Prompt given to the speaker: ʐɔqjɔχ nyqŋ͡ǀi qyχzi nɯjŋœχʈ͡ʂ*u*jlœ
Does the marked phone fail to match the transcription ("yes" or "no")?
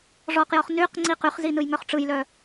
yes